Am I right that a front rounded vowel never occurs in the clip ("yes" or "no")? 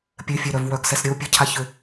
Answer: no